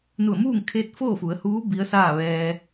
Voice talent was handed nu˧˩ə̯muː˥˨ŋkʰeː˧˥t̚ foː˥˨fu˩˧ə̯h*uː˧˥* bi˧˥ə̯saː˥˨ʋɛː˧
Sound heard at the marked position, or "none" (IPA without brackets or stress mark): uː˧˥